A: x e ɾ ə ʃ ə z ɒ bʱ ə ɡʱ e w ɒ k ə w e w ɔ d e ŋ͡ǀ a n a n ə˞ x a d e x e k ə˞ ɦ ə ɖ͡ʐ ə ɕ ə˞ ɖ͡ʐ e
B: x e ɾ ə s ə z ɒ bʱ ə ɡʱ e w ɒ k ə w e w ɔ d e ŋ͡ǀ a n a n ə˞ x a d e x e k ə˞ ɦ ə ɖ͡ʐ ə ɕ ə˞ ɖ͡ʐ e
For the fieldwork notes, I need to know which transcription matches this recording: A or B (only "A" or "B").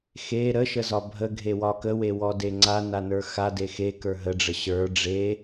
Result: A